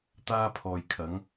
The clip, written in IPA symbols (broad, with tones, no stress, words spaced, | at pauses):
t̪aː˧pʰɔː˨jkʰɐ˨˧ŋ